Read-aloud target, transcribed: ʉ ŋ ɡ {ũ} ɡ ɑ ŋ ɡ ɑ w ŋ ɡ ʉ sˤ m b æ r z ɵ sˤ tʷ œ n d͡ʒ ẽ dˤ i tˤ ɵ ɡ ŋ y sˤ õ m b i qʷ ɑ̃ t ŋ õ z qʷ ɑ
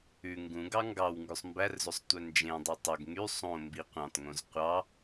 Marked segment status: correct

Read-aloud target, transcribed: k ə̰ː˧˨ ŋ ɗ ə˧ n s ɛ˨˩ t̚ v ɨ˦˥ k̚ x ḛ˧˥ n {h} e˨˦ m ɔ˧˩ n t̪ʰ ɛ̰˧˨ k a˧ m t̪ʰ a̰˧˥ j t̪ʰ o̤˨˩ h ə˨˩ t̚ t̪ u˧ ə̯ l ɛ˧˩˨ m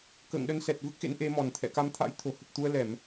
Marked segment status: incorrect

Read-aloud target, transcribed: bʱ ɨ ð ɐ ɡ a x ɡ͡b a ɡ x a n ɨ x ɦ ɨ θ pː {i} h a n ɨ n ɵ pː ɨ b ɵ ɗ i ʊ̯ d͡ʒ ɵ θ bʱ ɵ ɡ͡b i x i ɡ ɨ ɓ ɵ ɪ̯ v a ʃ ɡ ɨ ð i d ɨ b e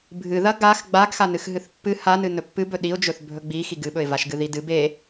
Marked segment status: incorrect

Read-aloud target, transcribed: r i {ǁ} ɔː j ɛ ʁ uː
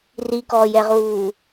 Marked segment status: incorrect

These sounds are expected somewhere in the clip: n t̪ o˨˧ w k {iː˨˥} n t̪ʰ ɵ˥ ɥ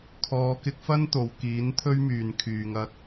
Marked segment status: correct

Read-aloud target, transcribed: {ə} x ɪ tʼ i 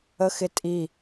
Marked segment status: correct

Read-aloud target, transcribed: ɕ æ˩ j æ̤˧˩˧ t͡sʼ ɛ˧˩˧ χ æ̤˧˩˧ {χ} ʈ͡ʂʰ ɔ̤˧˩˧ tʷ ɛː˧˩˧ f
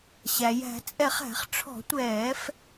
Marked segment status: correct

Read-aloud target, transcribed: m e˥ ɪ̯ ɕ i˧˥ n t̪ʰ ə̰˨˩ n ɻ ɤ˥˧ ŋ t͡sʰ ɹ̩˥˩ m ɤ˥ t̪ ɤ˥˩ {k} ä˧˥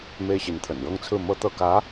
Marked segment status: correct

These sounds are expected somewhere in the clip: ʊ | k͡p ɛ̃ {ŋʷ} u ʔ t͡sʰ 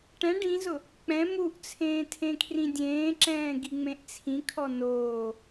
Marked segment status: incorrect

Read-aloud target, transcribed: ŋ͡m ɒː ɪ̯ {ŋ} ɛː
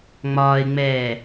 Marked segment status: incorrect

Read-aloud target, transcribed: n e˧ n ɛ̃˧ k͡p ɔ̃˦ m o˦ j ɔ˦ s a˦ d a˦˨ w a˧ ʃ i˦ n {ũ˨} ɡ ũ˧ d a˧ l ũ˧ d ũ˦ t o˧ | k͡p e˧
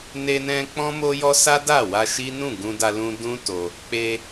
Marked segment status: incorrect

